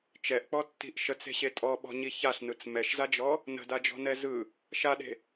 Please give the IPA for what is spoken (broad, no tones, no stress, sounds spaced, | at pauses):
t͡ʃ ɛ ʔ k͡p ɔ tː i̤ ʔ ʃ ə t͡s e̤ ɕ e tʼ ɔ ɓ ɔ̤ ɲ i ç a ɬ n ɯ t͡s m ɛ ʃ z a d͡ʒ ɔ | n ə̤ d a d͡ʒ ɔ̤ n ɛ z ɯ | ʃ a ɗ e̤